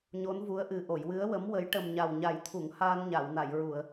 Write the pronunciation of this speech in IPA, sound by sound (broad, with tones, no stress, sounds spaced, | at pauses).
ɲ o˧˥ n v u˧˥ ə̯ ʔ ɨ˨˩ ʔ o˨˩˨ j w ɨ˧˥ ə̯ w ə˧˥ m w ə˧˥ j ʈ ə˨˩ m ɲ a˨˩ w ɲ a˨˩˦ j t̪ʰ u˨˩˨ ŋ h aː˧ n ɲ a˨˩˨ w n a˨˩˨ j ɹ u˨˩˨ ə̯